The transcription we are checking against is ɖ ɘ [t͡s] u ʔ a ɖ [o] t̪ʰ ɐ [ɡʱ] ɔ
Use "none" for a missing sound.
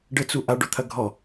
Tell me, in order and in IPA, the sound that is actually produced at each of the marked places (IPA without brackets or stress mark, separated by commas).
t͡s, o, ɡʱ